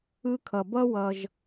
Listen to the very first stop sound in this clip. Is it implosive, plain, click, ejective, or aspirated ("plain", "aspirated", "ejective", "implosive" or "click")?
aspirated